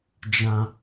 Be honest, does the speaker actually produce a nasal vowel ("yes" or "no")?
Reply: yes